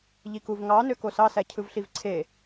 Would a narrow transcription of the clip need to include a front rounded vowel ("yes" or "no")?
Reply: yes